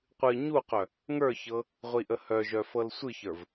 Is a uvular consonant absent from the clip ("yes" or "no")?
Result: no